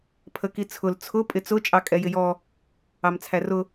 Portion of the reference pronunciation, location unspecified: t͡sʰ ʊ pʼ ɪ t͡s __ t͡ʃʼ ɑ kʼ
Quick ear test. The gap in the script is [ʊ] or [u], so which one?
ʊ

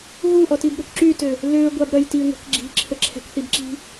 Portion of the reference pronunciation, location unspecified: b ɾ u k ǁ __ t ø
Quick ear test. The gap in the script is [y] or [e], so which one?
y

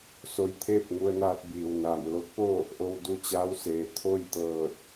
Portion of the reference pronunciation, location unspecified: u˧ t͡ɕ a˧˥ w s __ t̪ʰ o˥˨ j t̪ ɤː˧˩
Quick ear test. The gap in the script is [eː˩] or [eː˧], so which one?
eː˩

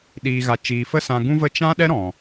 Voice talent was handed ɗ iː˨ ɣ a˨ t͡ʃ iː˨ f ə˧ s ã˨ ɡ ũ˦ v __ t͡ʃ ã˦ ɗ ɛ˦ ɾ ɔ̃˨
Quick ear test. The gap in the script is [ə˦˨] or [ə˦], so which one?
ə˦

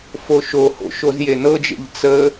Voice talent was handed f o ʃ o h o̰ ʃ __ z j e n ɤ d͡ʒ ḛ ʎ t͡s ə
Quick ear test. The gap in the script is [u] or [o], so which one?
o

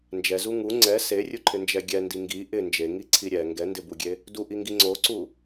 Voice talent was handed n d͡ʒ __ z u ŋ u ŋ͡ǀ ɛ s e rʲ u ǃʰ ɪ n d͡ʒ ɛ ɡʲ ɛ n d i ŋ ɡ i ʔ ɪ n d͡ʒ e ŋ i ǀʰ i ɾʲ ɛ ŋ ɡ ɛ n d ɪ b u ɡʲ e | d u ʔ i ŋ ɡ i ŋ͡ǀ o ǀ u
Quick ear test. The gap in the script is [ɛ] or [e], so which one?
ɛ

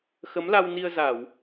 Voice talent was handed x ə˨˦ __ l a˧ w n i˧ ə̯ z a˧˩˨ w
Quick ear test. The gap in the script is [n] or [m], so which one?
m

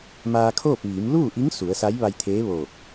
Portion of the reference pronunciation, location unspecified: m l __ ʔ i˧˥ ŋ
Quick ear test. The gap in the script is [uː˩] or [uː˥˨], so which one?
uː˥˨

